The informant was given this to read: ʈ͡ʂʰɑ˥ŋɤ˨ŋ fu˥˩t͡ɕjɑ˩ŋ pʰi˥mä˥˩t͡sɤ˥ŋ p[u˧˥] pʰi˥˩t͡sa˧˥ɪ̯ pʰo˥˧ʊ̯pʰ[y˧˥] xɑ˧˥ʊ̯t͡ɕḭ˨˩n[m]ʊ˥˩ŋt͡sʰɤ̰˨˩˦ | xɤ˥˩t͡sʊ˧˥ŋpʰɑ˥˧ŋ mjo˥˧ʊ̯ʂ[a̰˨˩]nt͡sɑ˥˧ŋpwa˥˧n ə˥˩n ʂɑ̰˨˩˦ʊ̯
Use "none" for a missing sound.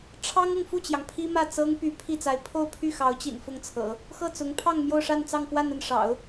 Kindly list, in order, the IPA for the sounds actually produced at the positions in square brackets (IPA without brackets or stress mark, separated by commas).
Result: y˧˥, y˥˩, f, a˥˧